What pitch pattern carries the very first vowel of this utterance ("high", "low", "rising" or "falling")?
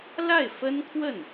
falling